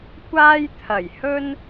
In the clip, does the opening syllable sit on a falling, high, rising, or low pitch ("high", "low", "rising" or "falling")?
high